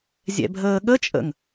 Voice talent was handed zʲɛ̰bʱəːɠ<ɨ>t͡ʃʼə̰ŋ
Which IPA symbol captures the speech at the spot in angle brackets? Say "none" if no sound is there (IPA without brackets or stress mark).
ə